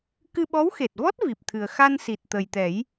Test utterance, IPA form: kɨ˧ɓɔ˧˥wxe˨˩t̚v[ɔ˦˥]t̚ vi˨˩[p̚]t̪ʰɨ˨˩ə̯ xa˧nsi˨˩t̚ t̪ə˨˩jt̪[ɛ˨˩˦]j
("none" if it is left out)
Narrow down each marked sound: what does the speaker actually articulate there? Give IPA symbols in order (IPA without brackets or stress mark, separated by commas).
ɔ˦˥, p̚, ɛ˨˩˦